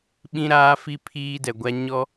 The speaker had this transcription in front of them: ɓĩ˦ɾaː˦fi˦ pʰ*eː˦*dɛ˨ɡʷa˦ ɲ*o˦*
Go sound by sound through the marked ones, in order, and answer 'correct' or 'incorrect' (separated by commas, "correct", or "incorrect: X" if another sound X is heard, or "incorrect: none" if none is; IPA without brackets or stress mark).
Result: incorrect: iː˦, incorrect: ɔ˦